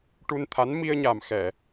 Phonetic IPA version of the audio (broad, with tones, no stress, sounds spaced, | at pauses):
ʈ u˧ n t̪ʰ a˧˥ n m i˧ ə̯ ɲ a˨˩ m x ɛ˨˩˨